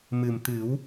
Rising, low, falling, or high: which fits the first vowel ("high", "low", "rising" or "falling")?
low